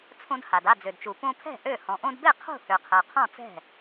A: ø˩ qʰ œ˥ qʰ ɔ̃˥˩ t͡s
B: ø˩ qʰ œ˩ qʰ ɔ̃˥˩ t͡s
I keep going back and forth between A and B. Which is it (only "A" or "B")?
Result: B